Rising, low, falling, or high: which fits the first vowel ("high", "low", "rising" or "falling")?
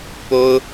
high